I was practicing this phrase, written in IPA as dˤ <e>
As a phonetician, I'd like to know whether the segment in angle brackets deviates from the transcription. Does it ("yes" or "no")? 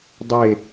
no